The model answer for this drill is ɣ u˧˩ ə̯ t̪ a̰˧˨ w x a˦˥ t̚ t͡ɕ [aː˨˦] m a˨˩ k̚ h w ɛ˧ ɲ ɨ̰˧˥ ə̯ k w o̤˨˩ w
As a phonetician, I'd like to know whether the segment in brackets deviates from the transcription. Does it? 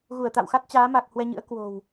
no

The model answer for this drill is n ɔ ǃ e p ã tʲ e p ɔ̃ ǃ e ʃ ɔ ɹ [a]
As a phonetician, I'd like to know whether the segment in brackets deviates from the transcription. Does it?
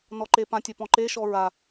no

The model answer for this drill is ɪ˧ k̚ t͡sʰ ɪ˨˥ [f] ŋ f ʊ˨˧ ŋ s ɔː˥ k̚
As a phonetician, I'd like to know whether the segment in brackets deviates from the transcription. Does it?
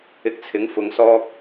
yes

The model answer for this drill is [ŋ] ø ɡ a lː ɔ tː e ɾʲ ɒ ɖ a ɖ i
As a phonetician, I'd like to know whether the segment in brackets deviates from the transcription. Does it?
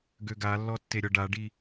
yes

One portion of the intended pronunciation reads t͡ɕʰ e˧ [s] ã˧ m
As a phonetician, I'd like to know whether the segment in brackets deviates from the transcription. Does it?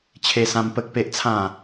no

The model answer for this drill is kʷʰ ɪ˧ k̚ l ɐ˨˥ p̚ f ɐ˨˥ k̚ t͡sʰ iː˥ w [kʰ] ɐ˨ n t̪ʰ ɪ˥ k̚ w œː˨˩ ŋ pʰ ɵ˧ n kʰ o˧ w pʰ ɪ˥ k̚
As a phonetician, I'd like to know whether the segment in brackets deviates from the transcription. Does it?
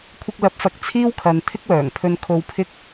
no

